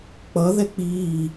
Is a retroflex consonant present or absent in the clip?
absent